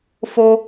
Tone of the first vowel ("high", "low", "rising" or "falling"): high